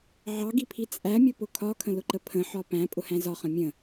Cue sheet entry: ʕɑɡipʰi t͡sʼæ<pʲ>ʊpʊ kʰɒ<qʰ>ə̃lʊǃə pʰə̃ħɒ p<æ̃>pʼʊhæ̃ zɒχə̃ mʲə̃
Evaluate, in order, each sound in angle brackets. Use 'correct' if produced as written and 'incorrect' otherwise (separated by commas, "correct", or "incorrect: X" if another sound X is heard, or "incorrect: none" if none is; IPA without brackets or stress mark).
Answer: incorrect: mʲ, incorrect: kʰ, correct